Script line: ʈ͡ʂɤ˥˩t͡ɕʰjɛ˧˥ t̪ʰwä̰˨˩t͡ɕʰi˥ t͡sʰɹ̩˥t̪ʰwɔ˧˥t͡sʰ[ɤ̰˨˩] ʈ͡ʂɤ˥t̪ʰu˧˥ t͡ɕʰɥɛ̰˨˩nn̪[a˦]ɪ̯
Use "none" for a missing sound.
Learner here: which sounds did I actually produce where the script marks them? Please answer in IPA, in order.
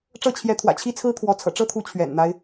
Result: ɤ̰˨˩, a˦

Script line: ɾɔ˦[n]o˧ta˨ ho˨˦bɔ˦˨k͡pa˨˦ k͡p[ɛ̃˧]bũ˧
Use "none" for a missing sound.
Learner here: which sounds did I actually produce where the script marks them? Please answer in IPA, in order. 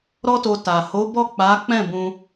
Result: t, ɛ̃˦˨

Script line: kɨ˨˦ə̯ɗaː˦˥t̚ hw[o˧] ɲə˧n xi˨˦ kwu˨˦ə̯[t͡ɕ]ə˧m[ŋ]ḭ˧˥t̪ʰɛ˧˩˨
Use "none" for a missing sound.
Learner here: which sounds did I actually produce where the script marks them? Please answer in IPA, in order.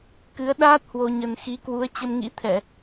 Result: o˧, t͡ɕ, ŋ

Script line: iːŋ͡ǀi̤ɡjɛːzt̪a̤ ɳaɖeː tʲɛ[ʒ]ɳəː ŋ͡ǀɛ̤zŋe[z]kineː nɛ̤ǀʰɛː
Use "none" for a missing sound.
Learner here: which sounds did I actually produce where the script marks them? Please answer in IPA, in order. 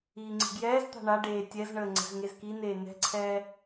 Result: z, z

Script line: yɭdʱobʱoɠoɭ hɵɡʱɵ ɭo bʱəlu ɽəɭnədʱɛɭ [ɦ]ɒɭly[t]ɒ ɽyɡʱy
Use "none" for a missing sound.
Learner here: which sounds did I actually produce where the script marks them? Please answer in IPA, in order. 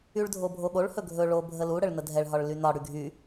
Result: ɦ, n

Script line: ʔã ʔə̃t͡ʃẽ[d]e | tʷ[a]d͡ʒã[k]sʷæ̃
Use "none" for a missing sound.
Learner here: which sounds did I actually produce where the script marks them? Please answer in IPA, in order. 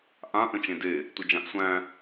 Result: d, ə, ʔ

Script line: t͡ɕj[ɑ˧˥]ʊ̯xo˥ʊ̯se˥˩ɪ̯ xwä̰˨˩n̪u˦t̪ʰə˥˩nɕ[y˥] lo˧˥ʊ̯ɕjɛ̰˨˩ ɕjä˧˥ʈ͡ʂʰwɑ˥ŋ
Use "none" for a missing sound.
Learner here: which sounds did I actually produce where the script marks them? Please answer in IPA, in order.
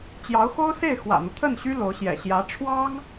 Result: ɑ˧˥, y˥

